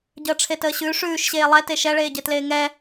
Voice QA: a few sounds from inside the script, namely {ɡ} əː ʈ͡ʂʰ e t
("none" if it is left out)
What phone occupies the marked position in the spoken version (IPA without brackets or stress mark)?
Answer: ɟ